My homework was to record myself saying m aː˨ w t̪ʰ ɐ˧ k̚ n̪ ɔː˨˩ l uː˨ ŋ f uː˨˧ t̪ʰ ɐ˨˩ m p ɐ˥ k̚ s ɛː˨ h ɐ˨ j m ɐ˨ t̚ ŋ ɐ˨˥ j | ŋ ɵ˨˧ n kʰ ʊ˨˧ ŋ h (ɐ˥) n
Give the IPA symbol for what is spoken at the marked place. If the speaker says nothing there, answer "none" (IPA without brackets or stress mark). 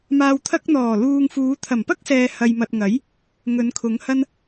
ɐ˧